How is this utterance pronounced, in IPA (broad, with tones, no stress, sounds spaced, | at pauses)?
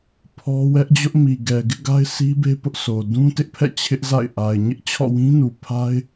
pʰ ɔ˦ w ɛ˦ ʔ d͡ʑ ʊ˦ ʔ m i˨ ɡ ɛ˨ ɡ ɪ˦ ʔ ɡ a˦ ɪ̯ sʰ i˦ b e˦ p ʊ˦ ʔ s o˨ d ũ˦ t ɪ˦ ʔ pʰ ɛ̰˦˨ t͡ɕʰ ɪ˦ ʔ z a̰˦˨ ɪ̯ ʔ a˨ ɪ̯ ɲ ɪ˦ ʔ t͡ɕʰ ɔ̰˦˨ w ĩ˦ n u˨ pʰ a˦ ɪ̯